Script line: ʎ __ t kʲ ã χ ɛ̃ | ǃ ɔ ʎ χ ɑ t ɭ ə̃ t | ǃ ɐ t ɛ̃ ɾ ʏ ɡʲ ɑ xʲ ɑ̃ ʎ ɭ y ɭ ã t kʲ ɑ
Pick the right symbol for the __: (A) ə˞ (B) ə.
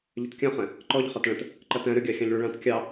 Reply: B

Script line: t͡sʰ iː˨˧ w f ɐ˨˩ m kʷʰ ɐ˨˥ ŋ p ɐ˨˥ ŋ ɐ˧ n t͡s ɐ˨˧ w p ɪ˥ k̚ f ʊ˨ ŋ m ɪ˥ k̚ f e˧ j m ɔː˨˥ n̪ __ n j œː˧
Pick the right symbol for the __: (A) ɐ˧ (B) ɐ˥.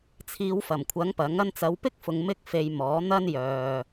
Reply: B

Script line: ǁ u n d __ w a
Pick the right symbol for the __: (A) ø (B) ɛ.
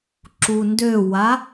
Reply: A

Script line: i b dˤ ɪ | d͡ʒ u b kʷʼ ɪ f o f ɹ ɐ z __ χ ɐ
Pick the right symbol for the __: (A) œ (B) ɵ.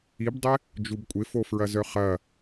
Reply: A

